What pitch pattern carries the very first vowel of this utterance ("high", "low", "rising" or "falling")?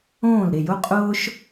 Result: falling